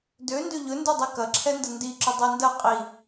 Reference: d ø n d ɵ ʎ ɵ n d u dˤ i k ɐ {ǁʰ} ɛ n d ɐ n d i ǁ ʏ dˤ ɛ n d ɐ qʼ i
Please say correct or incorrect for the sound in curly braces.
correct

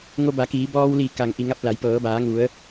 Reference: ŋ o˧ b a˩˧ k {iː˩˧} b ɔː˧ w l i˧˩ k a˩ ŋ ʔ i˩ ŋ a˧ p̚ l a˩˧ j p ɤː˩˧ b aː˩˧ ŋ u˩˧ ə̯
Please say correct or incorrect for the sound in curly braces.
correct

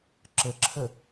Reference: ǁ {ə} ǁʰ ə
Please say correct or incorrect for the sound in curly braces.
correct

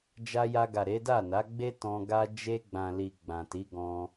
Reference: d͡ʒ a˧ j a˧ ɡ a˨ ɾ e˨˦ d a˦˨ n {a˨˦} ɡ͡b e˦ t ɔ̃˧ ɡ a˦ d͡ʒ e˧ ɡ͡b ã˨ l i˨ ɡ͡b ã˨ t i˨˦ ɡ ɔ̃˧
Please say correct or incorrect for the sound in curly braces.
correct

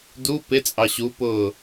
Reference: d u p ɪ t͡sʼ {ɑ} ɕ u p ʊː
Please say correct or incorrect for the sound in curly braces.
correct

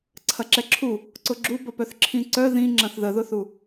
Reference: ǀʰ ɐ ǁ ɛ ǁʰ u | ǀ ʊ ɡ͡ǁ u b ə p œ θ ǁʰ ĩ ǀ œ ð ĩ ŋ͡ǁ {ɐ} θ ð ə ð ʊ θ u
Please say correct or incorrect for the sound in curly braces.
incorrect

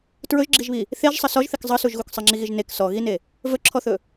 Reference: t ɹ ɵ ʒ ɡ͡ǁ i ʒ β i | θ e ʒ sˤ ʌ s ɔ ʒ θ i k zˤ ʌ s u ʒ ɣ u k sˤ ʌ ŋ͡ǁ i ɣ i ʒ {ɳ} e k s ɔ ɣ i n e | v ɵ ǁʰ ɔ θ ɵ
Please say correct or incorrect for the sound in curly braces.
incorrect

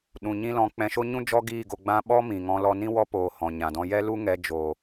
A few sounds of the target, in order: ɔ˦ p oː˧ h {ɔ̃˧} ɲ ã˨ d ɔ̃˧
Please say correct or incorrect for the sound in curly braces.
incorrect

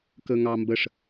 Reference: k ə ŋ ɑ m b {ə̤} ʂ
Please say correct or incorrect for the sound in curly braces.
incorrect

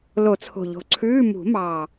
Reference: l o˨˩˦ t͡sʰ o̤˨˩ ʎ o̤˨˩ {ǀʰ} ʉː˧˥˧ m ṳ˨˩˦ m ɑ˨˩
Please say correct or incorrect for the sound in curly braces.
correct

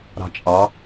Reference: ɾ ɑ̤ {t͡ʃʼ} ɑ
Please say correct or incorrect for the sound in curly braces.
correct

